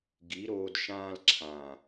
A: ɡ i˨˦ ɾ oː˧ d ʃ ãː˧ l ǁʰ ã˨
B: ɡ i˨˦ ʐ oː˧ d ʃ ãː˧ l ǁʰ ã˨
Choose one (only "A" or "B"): A